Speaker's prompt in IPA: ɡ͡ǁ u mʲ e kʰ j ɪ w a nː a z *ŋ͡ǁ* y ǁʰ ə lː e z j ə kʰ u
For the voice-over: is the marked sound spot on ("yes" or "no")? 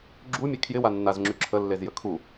yes